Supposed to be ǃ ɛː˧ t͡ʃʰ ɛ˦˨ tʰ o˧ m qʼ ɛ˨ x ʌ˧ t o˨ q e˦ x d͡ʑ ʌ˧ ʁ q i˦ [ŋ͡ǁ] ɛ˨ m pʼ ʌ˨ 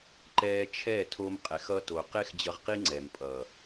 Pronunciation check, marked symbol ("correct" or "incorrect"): incorrect